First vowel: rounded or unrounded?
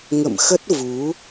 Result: unrounded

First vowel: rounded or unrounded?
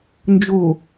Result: rounded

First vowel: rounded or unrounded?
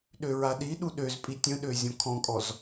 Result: rounded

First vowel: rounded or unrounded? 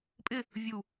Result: unrounded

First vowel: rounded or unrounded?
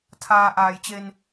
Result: unrounded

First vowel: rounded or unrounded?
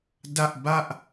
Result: unrounded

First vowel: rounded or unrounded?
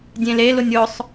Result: unrounded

